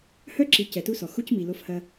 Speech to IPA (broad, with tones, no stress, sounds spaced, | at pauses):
h œ˦ ǁ i˨ c ɛ˨ t u˦ s ɔ˨ x u˦ c m i˨ l o˦ f h ɐ˦